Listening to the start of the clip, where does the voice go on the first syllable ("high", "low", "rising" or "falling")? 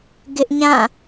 high